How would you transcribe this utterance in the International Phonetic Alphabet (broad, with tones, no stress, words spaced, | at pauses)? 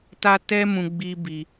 ta˦tɛ˦mũ˧ ɡ͡bi˦bi˦